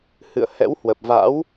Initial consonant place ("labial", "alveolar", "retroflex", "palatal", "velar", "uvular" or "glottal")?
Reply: glottal